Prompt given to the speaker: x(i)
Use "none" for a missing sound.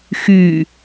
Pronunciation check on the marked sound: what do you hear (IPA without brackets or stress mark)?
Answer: y